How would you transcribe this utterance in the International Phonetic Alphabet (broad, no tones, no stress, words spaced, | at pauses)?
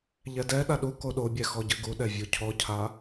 ʎɛdɛɗa ɗu koɗobʲɛ xɔɟɨɡuɗɛ vʲucʰɔcʰa